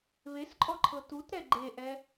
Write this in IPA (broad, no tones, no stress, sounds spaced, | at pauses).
β e s ǃʼ ɔ ǃʰ ɤ t u t ɾ ɛ ɡ͡ǃ e ʔ ɛ